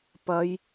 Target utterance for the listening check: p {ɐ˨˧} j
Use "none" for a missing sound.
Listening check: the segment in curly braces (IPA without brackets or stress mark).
ɐ˨˧